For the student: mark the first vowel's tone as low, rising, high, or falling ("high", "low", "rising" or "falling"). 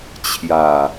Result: low